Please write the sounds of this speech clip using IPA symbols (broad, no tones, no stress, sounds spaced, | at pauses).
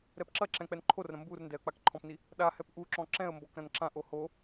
ɾ ɛ p ǁ ɐ ǁ ɛ̃ k͡p ɛ n ǃʰ o r ɾ ɐ̃ m b u r n d ɛ ə̯ k͡p a k ǃʰ ɔ̃ p n i | ɗ a h ɛ p ʔ u ǁ ɔ̃ ǁ ɛ̃ ə̯ m b ɔ k ɾ ɐ̃ n ǁ ã ʔ o h o